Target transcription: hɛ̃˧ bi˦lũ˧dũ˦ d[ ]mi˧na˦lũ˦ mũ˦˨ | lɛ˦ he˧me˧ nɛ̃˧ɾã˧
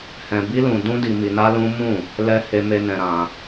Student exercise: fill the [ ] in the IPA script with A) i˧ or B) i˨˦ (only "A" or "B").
A